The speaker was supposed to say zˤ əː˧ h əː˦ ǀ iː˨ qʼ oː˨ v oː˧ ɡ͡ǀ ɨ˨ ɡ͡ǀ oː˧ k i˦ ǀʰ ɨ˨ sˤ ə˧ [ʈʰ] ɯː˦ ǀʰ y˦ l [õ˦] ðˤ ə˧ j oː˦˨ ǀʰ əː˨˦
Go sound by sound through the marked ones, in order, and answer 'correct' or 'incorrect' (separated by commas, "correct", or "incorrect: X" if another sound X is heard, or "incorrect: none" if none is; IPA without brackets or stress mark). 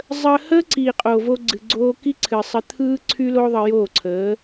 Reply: incorrect: t̪ʰ, incorrect: o˦